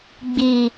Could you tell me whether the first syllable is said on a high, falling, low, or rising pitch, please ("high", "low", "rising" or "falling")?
low